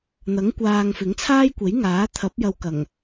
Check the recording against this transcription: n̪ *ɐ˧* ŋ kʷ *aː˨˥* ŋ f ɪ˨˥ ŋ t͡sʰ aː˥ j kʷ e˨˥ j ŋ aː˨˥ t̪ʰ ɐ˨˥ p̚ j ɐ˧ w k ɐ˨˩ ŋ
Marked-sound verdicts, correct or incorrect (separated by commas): incorrect, incorrect